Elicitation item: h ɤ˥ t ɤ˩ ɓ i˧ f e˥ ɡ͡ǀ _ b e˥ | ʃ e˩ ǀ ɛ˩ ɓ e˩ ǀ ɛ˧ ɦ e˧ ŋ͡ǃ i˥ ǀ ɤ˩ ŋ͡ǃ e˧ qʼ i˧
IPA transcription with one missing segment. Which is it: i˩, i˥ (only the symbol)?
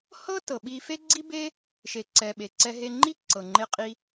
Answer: i˥